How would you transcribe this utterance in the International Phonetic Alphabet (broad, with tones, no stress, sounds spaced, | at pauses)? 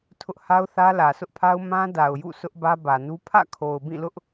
tʰ ʊ˦ ʔ h a˦ ʊ̯ θ ä˦ l ä˨ sʰ ʊ˦ ʔ pʰ a˦ ʊ̯ m ã˦ d a˨ ʊ̯ j ṵ˦˨ sʰ ʊ˦ ʔ b ä˦ b ä˨ n u˦ pʰ ä̰˦˨ kʰ o˨ ʊ̯ b ĩ˦˨ l ʊ˦ ʔ